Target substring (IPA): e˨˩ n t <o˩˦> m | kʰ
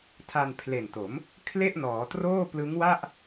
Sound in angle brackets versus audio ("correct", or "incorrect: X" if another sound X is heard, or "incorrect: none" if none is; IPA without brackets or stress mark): correct